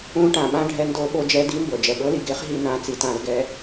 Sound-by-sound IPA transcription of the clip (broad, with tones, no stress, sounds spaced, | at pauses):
ũ˩˧ ʈ ã˩ ɓ ã˩˧ ɖʱ ɛ˩˧ n d o˧˩˧ ɓ o˩˧ d͡ʒ ɛ˩˧ d i˩˥ m b ɤ˩ d͡ʒ ɛ˩ ɠ ɤ˩˥ l i˩ ɡ e˧˩˧ χ ɦ i˧˩˧ n ã˩˥ t͡s i˩ t ã˧˩˧ l ɡ ɛ˩˧